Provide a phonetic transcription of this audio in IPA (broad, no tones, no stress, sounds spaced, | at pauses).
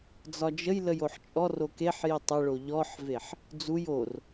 d͡z ɒ d͡ʒ ə j l ə j o ħ t͡ʃʼ ɔ r o k e ħ j i tˤ ə ɭ o ʎ ɔ ħ v e ħ | d͡z u j o r